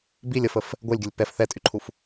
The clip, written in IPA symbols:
b i lʲ ə f ə f | ɡʷ ɛ lʲ ɡʲ ə lʲ p ɛ f θ ɛ tʼ y ǃʰ u f

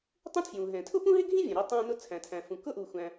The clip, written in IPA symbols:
tˤ ũ˥ tʰ j ũː˩ ɦ ɛ̃˩ tʰ ʊ˥ p ũ˥ ɦ ɪ˥ ɡʱ ĩ˥ vʲ ə̃˩ ɾ i˥ tˤ æ̃ː˥ n ʊ˥ t͡sʰ æ̃˩ tʰ æ̃˩ f ũ˩ k ʊ˥ ʔ uː˩ xʷ æ̃˩

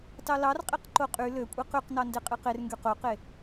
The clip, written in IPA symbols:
t ɑ l ɑ r qʼ e q ǃ o qʼ y l ø kʷʼ i q y q n ɑ n d e qʼ ɯ q e r ŋ ɡ y q o q e

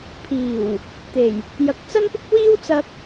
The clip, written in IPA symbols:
pʰ iː˨˩ w | t̪ e˨˩ j | j ɐ˨˥ k̚ t͡s ɐ˥ n p ɪ˥ k̚ w iː˥ w t͡s ɐ˧ k̚

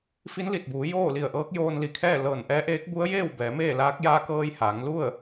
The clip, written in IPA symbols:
f i˧˥ n l i˧˩ t̚ b uː˩˧ j oː˥˨ l i˧˩ ə̯ ʔ ɤː˧˥ k̚ j oː˧ n l i˩ kʰ ɛː˥˨ l ɤː˧˩ n ʔ ɛː˧˥ ʔ eː˧˥ k̚ b u˧˥ ə̯ j eː˥˨ w b ɛː˩˧ m eː˥˨ l aː˧˥ k̚ j aː˧ k ɤː˧ j h aː˩˧ ŋ l u˥˨ ə̯

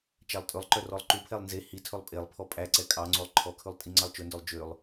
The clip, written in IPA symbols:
t͡ʃ æ lˠ tʼ ɵ lˠ ǃ œ r ɔ lˠ ǃ u pʰ ɛ lˠ n z e h i tʰ ɵ lˠ pʼ e lˠ pʰ ɔ pʼ æ ǀ ɛ kʼ ɑ ŋ͡ǀ o lˠ ǃʰ ɔ kʰ ʉ lˠ tʼ i ŋ͡ǀ ɑ lˠ t͡ʃ ɵ n d œ lˠ d͡ʒ ø lˠ

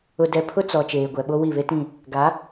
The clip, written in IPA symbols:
ʊ˨ d ɛ˨ pʰ ʊ˦ t͡s ɔ˨ t͡ʃ eː˨ ɡʷ ɛ˨ ɓ o˦ w i˦˨ β e˦ t ĩ˦˨ | ɡ a˨˦

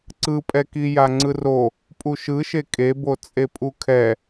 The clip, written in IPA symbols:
ǀ ɯ pʼ ɛ k i j a ŋ͡ǀ ɯ r o | pʼ u ʃ ɯ ʃ e kʼ e b o t͡sʼ e pʼ u kʰ ɛ

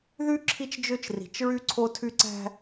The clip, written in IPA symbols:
ð y˦ ǁʰ i˦ t͡ʃ d͡ʒ ø˦ t͡ʃ r i̤˨ t͡ʃ ɹ y˦ ǀʰ o˦ tʰ y˦ ǀ æ̤˦

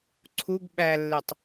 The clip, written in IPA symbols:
ǀʰ u ɡ ɓ æ lː e tˤ

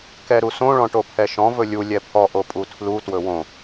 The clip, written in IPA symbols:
k ɛ ɾ u s õ ɭ ɔ̃ ʈ o pʰ ɛ ʃ ɔ̃ v ɵ lʲ u lʲ ɛ pʰ ɔ ʔ o pʼ u tʰ l u t w ɵ w õ

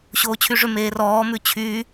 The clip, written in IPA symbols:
ɕ oː t͡ɕʰ y ʐ ʏ m eː r ɔː m ʉ t͡ɕʰ yː

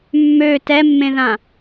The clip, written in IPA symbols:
mː ø t ɛ mː ẽ ð ã

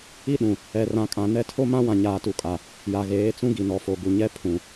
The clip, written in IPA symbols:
i˦ ɗ ũ˨ | ɛ˨ r ã˨ kʼ ã˨ n ɛ˦ tʰ o˦ m ã˦ w ã˨ ɲ aː˨ t u˨ kʼ a˨ | j a˨ ɣ eː˨˦ t͡s ũ˦ ɡ i˨ n ɔ˨ f o˨ ɡ u˨ ɲ ɛ˦ pʰ ũ˨

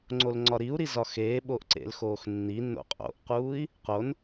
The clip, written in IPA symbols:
ŋ͡ǀ o l ŋ͡ǀ ɒ ɾ i u̯ ɾ i z ɒ x eː ɓ oː ʔ ǀ ḛ l x oː x nː i nː o̰ qʼ o̰ ʔ q uː i̯ | q o n

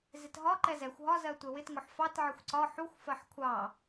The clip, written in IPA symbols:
z ɪ t ɦ ɒ ǃ ɛ z ɛ xʷ ɦ ɒ z ɜ tʷ ɛ w ɪ t ŋ ʊ ħ f ɑ t ʕ ɪ xʷ ǀ ɒ ħ u xʷ f ɜ ħ kʷʰ ɑ

